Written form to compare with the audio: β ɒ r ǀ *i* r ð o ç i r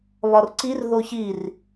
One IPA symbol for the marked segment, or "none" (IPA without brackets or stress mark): i